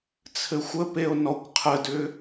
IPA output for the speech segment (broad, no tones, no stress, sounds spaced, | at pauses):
t͡sʰ ɘ xʷ ə p e o̯ n ɔ kʷ qʰ ə d ʏ